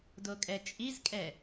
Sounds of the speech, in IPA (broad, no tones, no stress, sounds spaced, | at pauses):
d o kʼ ɛ t͡ʃʼ i z kʼ ɛ